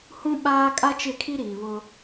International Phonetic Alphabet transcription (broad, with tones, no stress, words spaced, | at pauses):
hũ˦ɓaː˦ kʼa˦t͡ʃɪ˦˨kʰi˦ɾiː˨ βʊ˦